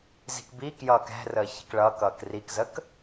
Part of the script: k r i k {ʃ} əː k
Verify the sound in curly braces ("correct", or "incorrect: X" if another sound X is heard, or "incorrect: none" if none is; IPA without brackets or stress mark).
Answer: incorrect: z